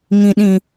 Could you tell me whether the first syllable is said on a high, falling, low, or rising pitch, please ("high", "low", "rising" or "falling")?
high